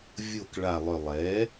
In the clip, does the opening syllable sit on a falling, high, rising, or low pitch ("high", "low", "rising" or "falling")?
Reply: falling